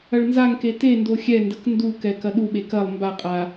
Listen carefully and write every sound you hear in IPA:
ɐ ɭ n z a ŋ k e t e n d o xʲ ɛ n d ɐ k n d u k ɛ k ɐ ɗ u ɓ e k ɐ lˠ m b a qʼ a

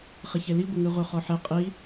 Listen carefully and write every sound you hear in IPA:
χ ɪ ç e l i ɡʷ ɪ ŋ ɯ ʁʷ œ χ ɔ ħ ɛ qʼ i

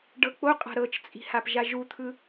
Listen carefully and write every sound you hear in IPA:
ɖ ɤ k͡p o qʼ a̤ ɾ ɤ t͡ʃ t͡sʼ i̤ h a p ʒ a ʒ u t̪ʰ ɯ

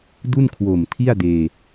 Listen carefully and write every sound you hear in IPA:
d u˥˩ n kʰ w o˨˩ m tʰ i˥˩ a̯ d eː˧

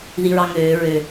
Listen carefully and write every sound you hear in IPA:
ð i ɹ ɑ ŋ øː ɹ ø

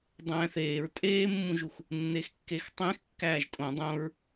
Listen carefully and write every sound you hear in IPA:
dˤ æ̃ː θ eː ɹ tʼ eː mː ũ ʒ u x | nː e x kː e x tˤ ẽ x kː æː ʒ tʼ õ dˤ õ ɹ

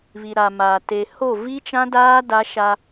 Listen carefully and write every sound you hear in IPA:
β i˨ ɾ a˨ m a˨ t e˨ h o˦˨ v i˦ t͡ʃ ã˦ d aː˦ d a˦ ʃ a˦

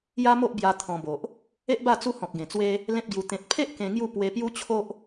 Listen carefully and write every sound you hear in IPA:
j a˦ m o˦ ʔ b j a˧ t̪ʰ ɔ̃˧ b o˨ ʔ | e˦ ʔ b a˥˧ t͡s u˦ h ɔ̃˨ k̚ ɡ ẽ˨˩ t͡s w e˦ | l ẽ˦ p̚ ɡ j u˧ t̪ ẽ˨ t̚ pʰ e˦ ʔ k ẽ˧ ŋ j u˥˧ p w e˧ p j u˦ t͡ɕʰ o˦ ʔ

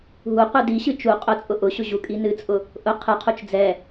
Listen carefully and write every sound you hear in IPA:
ɦ u qʷ i d i ɕ ɨ t͡ʃ u qʼ ʊ t͡sʼ ʊ ʔ ʊ ɕ ʊ ʑ u kʼ i n ɨ t͡sʼ ʊ | ʔ ʊ qʰ ɨ qʰ u t͡ʃ d͡z ɛ

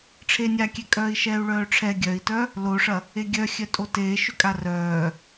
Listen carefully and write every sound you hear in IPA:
ʈ͡ʂʰ e nʲ a kʲ ɛ kʼ œː i̯ ʃ ɛː u̯ ɭ œː ʈ͡ʂʰ ɛ ɡʲ œ i̯ t œ | l o ʂ ɐ | e ɡʲ œ xʲ œ tʼ o t eː ʃ ʏ kʼ a r œː

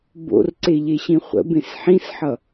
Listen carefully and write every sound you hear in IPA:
b o̰ r ǀ e ʎ e ɕ ĩ χʷ ə̰ b ẽ s ħ ĩ s ħ ʌ

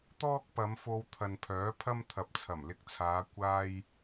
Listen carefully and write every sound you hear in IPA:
t̪ ɔː˥ k̚ p ɐ˨˧ m f o˧ w t̪ʰ ɐ˨ n pʰ œː˨˥ pʰ ɐ˥ m t̪ʰ ɐ˨ p̚ t͡sʰ ɐ˨˩ m l ɪ˧ k̚ t͡sʰ aː˨˧ kʷ aː˥ j

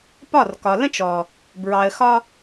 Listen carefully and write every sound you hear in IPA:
p ɒ˦˨ r k ɒ˨ l ə̃˦ t͡ʃ ɔ˨ | b ɹ ɑ˨ ə̯ x ɒ˧

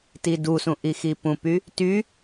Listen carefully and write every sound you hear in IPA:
t i d u s ũ ʔ i x i p ũ p y | t y

